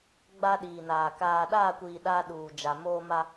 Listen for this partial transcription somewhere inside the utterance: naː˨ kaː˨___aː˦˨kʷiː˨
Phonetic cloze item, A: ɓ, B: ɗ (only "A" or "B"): B